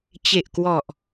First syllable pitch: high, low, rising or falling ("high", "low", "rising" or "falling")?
low